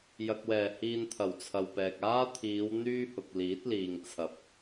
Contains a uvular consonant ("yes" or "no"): no